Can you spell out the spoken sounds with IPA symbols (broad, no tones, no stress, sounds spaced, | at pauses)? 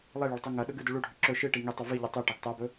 lˠ e ɭ ɐ ɭ tˤ u ŋ ɐ ɗ ɵ ɡ ɨ d ʉ ɭ u ɖʱ ʉ ǁ ɵ ʃ ɨ ʈ i ŋ i tˤ ɵ v i ʎ u tˤ ʉ ʈ ɐ ɡ tˤ a b ɵ